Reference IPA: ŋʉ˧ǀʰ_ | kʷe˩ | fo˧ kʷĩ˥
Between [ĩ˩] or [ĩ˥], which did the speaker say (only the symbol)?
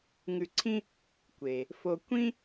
ĩ˥